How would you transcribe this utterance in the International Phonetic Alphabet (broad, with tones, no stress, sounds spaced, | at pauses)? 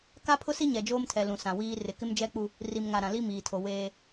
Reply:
k a˦ pʰ ʊ˦ s i˦ ɲ ɛ˨ d͡ʒ oː˦ m tʰ ɛ˨ l ũ˨ s ã˨ w iː˦ r ɪ˨ k ɪ˦ m d͡ʒ ɛ˦ k͡p u˦ | r i˨ m ŋ a˨ ɾ ã˨ l i˦ m iː˨ tʰ o˨ w eː˦